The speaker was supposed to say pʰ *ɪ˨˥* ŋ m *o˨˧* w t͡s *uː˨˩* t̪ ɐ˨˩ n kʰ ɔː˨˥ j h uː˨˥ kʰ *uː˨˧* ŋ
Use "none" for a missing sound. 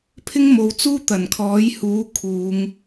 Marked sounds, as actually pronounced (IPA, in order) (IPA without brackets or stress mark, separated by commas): ɪ˥, o˨˧, uː˥, uː˨˧